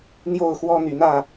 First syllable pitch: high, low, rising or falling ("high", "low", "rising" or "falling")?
falling